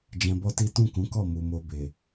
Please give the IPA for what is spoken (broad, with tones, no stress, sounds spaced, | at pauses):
d͡ʒ ɛ̃˧ b ɔ˦ t i˦ t ũ˦˨ k ũ˨˦ k ɔ˦˨ m u˨ m o˧ b e˨